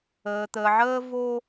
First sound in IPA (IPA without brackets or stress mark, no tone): əː